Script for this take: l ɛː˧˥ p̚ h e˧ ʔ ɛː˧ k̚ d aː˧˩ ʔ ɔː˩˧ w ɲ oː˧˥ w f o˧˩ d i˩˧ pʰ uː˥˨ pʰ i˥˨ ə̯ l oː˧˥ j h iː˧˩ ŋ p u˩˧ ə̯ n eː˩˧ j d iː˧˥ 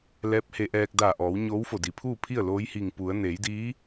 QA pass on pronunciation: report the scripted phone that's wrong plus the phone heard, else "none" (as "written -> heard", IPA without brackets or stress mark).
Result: none